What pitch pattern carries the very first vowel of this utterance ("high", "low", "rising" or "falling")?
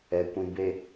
low